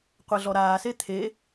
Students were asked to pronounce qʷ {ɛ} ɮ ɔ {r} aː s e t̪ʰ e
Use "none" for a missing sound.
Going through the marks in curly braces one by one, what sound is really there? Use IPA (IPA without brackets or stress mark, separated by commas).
ɛ, ɾ